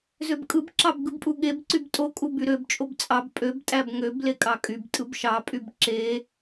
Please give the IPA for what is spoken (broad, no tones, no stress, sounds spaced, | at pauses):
z ø b kʼ ɯ b ǁ ɑ b ɡ ɯ b pʼ u ɠ e b ǀ y b tʼ o kʼ u b y ɾ ø b t͡ʃʼ o b t͡sʼ ɑ b pʼ ø b tʼ æ b ŋ ø b l e kʼ ɑ kʼ y b tʼ ɯ b ʃ ɑ pʼ y b ǁ e